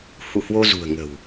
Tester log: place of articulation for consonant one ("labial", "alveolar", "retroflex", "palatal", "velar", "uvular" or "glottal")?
glottal